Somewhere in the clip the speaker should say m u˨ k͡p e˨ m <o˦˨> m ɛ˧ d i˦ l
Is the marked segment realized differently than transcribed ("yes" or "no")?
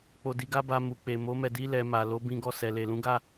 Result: yes